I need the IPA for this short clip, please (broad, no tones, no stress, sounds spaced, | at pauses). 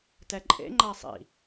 t ɛ ǃʼ ḛ ŋ͡ǃ a sˤ ḭ